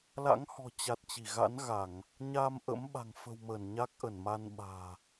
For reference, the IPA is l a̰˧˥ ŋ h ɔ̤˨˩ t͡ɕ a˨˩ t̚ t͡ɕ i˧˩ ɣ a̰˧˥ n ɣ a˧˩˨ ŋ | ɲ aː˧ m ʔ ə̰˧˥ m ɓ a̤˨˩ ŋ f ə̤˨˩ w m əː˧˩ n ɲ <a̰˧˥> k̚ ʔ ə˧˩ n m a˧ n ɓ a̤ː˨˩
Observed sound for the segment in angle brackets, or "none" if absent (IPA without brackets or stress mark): a˦˥